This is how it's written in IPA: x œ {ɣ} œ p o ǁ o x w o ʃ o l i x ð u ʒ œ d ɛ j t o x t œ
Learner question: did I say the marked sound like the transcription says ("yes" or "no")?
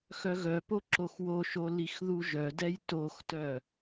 yes